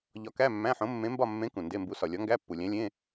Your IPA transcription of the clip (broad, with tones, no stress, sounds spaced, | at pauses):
ʎ ɒ˧˥ k æ˧˥˧ mː æ̃˧˥˧ ħ õ˧˥ mː ẽ˧˥ m b ɒ˥˧ mː ẽ˧˥ k ũ˨ n d e˧˥˧ m b u˧˥ s ɒ˨ lʲ ɒ˧˥ ŋ ɡ æ˧˥˧ pː u˨ lʲ æ̃˧˥ lʲ ẽ˧˥˧